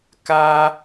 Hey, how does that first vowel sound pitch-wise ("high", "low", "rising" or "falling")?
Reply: high